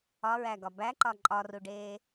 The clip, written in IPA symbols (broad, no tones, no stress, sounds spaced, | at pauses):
ɒ ɹ æ ɡ ɒ b æ ǃ ɒ ǃʼ ɒ r u ɖ eː